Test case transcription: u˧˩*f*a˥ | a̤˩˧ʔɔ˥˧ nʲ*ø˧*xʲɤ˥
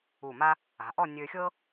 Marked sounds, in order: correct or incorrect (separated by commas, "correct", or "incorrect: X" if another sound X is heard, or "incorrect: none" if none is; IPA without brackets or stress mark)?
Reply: incorrect: m, correct